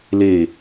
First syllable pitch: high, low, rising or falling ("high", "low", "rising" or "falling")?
low